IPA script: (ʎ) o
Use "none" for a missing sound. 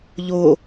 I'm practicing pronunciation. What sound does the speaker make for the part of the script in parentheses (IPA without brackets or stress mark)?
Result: ʎ